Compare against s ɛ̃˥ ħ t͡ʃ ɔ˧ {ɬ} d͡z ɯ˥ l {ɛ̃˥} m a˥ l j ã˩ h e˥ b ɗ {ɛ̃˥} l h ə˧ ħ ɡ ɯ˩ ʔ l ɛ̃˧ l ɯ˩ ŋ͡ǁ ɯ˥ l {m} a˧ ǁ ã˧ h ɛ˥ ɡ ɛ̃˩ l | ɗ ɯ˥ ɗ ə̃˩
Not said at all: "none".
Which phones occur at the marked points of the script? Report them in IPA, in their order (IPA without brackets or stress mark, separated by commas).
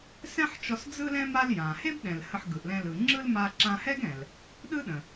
s, ɛ̃˥, ɛ̃˩, m